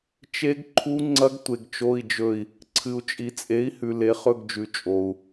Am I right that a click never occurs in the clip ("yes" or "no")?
no